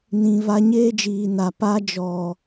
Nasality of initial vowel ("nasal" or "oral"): nasal